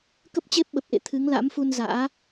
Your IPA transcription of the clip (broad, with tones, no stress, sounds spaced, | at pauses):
k ə˦˥ p̚ t͡ɕ e˦˥ p̚ ɓ ə˨˩ p̚ ʔ ḛ˧˨ t̪ʰ ɨ˨˦ ŋ l a̰˧˥ m f u˧ n z a̰ː˧˥